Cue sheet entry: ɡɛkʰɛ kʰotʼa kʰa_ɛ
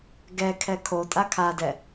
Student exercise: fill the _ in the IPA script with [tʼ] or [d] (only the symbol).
d